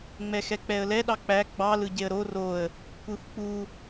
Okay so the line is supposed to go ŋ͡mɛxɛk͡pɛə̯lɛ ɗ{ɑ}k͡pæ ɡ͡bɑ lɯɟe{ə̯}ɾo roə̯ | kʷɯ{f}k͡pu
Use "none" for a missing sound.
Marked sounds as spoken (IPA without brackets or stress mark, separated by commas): ɑ, ə̯, f